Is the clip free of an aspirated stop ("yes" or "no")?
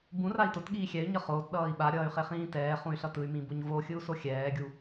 yes